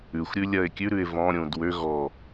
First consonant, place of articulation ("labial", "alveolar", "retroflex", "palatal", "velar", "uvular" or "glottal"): velar